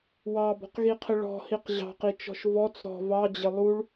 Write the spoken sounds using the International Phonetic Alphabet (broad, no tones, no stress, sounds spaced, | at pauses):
w ɑ b ɔ̤ q ɣ i qʰ ɪ ɭ ɔ̤ h i q ʑ ɑ̤ q i t͡ʃ ɔ̤ ʃ v ɔ t͡s ɾ ɔ̤ v ɑ d͡ʑ ɪ lˠ u ɭ